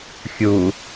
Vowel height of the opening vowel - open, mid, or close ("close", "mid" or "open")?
close